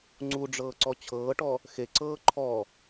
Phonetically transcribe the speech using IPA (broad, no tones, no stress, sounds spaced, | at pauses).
ŋ͡ǀ u ɖ͡ʐ ɤː ǀ ɔ t͡ɕʰ ɤː ʈ ɔ | x e ǀ ɤː ǃʰ ɔ